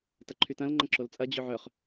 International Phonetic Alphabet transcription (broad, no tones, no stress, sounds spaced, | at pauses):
t ɐ ǃʰ y t ɐ̃ l ŋ͡ǃ ɐ̃ ǁ o l t͡sʼ ɐ d͡ʑ ʏ ʕ œ χ